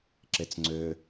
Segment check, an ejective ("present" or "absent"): absent